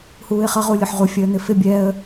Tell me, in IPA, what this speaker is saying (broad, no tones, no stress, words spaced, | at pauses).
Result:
huːɪ̯χʌ ʁulʲʊħʁu fʲəːn̪ɪfɪ bʲɛə̯